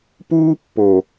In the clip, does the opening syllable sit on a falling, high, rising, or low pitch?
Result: high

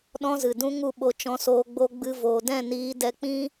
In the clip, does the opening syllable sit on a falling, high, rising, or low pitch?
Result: high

